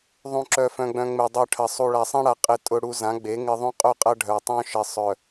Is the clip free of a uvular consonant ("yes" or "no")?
no